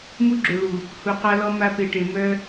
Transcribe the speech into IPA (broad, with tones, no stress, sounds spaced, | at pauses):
m u˦ ɡ͡ǁ ø˨ ɭ u˨ | h u˨ q a˦ l ɔ˦ m a˦ p e˨ ʈ e˨ m œ˦